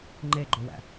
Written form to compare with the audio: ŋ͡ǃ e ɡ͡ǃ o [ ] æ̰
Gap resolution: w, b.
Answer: w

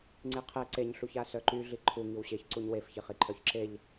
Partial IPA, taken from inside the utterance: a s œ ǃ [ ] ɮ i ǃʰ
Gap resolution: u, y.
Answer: y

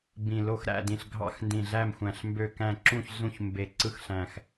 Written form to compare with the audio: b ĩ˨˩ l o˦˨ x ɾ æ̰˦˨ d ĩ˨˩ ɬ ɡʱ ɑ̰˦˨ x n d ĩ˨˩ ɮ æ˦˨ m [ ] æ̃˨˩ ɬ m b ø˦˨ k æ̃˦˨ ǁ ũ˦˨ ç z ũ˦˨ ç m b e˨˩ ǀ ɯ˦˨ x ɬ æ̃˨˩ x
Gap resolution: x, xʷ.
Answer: xʷ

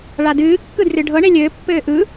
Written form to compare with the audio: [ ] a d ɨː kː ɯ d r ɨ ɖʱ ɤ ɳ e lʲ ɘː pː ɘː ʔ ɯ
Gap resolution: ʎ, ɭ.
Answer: ɭ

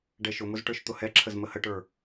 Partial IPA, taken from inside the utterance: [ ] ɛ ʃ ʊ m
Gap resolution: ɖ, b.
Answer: ɖ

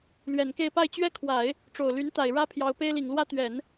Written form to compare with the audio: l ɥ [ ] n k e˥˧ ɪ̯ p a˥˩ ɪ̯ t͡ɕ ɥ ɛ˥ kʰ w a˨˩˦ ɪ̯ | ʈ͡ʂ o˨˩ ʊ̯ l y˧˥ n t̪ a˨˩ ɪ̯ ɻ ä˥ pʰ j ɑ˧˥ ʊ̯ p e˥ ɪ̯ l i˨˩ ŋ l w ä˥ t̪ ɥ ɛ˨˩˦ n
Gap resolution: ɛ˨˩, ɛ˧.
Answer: ɛ˨˩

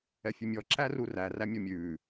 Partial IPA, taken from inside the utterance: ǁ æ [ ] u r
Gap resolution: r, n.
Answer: r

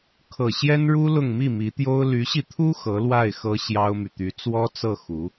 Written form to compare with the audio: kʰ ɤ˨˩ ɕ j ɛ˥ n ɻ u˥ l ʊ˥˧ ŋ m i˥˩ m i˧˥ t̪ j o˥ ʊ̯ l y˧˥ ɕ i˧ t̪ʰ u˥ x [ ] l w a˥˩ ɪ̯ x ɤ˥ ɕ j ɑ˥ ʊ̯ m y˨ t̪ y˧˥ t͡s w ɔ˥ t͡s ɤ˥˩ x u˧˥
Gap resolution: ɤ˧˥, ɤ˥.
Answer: ɤ˧˥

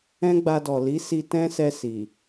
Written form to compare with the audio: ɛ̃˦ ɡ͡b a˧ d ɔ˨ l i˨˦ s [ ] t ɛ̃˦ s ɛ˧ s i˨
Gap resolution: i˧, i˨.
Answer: i˧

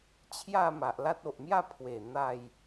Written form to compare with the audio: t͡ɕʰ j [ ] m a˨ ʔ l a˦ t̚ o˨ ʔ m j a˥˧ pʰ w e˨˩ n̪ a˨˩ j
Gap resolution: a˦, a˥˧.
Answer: a˥˧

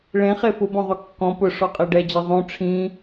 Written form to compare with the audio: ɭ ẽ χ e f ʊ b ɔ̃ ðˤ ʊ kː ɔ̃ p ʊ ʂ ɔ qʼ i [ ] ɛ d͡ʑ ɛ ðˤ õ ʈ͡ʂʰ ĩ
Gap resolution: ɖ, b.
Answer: ɖ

